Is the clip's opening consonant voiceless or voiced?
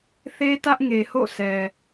voiceless